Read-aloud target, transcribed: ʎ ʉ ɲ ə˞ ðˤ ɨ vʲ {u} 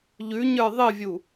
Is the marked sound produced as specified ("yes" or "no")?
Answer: yes